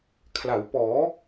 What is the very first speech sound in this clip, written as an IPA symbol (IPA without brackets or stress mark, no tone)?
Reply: kʰ